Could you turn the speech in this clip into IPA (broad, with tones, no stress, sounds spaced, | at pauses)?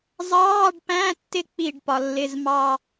zˤ ɑː˧˥˧ ɖ p æ̃˧˥˧ tː ɪ˦˨ k͡p i˦˨ ɖ p ɒ˩˧ lː ɪ˧˥˧ z m ɑ˦˨